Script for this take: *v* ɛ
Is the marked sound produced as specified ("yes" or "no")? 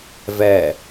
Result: yes